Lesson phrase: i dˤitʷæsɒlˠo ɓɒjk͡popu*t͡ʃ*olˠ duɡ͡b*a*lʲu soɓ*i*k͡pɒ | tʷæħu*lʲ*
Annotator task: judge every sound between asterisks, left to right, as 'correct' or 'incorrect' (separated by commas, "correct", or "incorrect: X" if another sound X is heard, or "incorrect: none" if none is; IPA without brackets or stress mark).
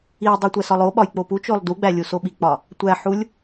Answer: correct, incorrect: æ, correct, correct